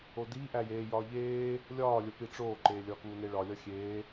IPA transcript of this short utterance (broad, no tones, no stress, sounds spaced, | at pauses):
o d iː ʔ æ j eː j ɒː ʎ eː | lʲ ɒː lʲ o p i ʈ͡ʂ oː ǃ eː lʲ ɒː k uː n e ɭ ɒ lʲ ɒ xʲ eː